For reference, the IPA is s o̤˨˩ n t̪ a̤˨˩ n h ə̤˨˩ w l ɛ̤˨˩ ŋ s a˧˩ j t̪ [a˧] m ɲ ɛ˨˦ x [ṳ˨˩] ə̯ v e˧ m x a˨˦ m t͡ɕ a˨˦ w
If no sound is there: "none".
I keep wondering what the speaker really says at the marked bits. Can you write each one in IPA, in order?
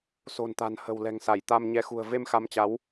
a˧, ṳ˨˩

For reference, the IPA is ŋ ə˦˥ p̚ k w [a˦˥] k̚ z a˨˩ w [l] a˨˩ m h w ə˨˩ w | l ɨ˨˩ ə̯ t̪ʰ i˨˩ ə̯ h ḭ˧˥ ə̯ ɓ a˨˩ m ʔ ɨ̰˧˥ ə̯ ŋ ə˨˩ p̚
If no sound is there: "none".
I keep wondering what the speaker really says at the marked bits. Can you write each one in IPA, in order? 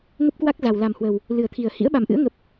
a˦˥, l

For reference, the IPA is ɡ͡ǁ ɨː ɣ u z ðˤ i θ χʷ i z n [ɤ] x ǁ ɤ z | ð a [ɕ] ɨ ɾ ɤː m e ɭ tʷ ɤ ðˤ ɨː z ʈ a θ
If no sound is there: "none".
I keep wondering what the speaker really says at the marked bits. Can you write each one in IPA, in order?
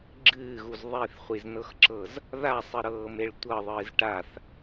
ɤ, sˤ

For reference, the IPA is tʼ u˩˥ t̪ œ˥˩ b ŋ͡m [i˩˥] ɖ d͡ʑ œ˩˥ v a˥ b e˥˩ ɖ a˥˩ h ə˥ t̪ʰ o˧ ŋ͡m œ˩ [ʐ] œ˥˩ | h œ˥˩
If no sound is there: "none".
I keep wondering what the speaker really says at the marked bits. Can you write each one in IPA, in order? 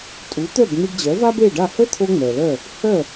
i˧, l

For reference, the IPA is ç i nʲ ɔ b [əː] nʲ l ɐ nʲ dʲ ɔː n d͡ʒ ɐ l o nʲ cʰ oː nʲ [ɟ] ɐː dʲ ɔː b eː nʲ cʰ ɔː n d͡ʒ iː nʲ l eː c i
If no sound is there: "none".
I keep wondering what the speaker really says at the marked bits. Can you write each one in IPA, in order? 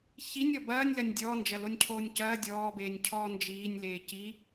ɐː, c

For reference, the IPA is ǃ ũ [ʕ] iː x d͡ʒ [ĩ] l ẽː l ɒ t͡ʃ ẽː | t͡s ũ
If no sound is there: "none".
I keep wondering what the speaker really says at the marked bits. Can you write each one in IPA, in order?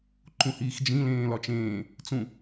h, ĩ

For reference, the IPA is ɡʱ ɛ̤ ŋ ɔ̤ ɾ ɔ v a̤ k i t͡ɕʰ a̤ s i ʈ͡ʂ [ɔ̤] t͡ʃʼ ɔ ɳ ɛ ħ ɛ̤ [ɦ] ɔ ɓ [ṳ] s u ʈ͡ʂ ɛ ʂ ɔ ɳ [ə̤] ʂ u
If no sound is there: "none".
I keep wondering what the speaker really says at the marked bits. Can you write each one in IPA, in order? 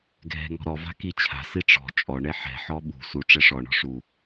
ɔ̤, ħ, ṳ, ɔ̤

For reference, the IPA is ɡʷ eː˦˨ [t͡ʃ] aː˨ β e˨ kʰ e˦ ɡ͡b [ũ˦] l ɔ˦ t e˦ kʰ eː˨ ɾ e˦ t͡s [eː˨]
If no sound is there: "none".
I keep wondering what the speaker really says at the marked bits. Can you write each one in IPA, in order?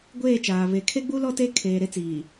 t͡ʃ, u˦, iː˨

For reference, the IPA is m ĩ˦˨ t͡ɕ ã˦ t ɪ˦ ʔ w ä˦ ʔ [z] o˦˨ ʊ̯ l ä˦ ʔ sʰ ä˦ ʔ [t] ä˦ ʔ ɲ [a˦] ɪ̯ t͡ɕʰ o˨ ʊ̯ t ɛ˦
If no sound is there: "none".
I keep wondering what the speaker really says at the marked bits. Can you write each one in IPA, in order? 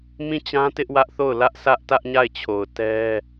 θ, t, a˦˨

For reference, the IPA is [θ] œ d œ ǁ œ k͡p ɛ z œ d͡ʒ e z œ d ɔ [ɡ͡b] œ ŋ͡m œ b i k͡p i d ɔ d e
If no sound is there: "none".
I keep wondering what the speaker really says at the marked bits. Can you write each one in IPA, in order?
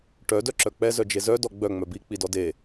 ʈ, ɡ͡b

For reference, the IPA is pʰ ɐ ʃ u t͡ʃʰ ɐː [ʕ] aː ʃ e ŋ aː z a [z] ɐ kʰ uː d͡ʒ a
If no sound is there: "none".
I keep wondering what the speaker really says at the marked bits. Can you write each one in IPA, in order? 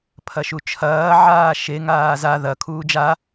ʕ, ð

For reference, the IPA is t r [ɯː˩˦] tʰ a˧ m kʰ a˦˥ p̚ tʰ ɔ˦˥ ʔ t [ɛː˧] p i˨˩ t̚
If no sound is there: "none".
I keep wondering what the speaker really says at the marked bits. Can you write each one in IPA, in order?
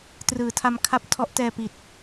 ɯː˩˦, ɛː˧

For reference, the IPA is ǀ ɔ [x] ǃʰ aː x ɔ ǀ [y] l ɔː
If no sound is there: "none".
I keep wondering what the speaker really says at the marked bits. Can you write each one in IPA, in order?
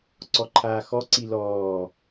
none, i

